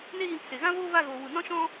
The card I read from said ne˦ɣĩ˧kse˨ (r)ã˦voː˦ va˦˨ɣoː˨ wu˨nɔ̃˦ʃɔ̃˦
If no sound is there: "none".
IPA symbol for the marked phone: ɣ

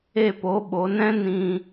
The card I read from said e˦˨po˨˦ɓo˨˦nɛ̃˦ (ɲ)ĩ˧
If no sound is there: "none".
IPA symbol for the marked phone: n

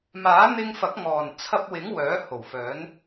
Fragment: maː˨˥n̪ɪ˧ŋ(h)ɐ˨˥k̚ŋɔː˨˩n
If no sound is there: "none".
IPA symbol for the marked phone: f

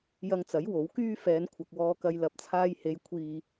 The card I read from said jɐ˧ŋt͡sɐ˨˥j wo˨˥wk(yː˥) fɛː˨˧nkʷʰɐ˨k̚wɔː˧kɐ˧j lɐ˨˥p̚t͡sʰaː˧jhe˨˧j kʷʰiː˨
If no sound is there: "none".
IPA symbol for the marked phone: yː˥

